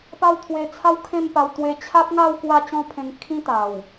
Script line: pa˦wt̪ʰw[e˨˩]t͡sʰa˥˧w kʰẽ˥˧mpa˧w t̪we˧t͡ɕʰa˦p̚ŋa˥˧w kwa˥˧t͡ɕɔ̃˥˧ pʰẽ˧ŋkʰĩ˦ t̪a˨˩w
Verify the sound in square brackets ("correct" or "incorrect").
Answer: incorrect